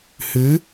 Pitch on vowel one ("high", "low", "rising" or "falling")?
rising